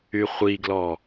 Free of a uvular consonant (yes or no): no